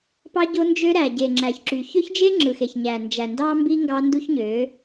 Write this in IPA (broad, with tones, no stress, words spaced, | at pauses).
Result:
pɑ˦ɟo˦nd͡ʒø˦ ɾæ˨ɟe˨ŋ͡ǁæ˨çǁy˨ çø˦çd͡ʒe˦ ŋ͡ǁɯ˨xe˨ç ɲæ˨nd͡ʒæ˨ ndɑ˦mbi˦ ŋɡɑ˦ndu˦çɲø˨˦